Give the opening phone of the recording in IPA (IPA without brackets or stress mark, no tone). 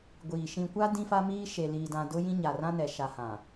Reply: ɡʷ